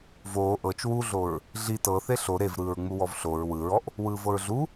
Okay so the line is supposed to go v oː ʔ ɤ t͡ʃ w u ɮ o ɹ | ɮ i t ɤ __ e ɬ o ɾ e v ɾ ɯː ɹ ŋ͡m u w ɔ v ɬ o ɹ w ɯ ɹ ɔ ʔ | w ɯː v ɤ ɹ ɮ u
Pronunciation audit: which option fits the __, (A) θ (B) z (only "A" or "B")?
A